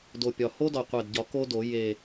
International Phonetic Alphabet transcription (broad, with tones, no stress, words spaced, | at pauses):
do˨˩pʲɒ˨˩ ho˦˥dɒ˨˩qʷæ˨˩dɟɒ˨˩˦ ko˦˥do˨˩˦ je˨˩